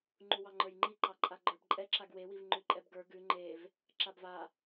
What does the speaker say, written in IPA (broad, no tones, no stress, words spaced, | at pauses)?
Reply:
ŋ͡ǃuwɑŋ͡ǃə˞jŋ͡ǃi ǃɑǃʼaɡ͡ǃə˞bǃʼɛ ǁaɡwewiv ŋ͡ǃʉǃʼɛbɡə˞ ɡʉ ŋ͡ǃev | ǁabva